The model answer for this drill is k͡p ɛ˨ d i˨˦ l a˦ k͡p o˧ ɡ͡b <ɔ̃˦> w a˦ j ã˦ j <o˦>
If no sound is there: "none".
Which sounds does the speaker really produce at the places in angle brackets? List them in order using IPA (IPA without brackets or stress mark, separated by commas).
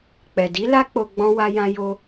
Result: ɔ̃˦, o˦